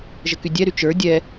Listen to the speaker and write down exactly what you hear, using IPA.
ʒəkydʲɛɾy t͡ʃə˞ dʲɛ

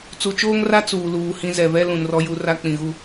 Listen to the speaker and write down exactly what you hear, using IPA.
t͡su˨t͡ʃoː˦ŋra˦ t͡suː˨luː˨hĩ˦ zɛ˨vɛ˦ lũ˨nrɔ˦ju˦ ra˦k͡pĩ˨ɣu˦

